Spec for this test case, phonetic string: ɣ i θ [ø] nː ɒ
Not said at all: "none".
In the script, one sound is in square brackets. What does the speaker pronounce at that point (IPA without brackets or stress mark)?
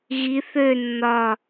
ø